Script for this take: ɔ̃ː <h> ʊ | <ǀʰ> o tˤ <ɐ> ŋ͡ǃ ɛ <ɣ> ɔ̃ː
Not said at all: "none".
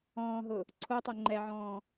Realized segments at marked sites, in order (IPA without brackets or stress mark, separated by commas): ɦ, ǀʰ, ɐ, ʕ